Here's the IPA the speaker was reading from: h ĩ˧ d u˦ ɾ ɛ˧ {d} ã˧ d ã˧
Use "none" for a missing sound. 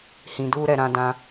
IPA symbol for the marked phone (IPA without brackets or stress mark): ɾ